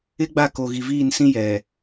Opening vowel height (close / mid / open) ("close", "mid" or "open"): close